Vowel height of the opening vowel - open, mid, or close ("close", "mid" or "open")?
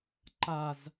open